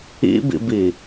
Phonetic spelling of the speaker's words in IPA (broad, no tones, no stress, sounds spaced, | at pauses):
ḭ b ḭ b i